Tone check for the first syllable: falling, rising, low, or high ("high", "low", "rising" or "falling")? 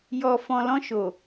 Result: low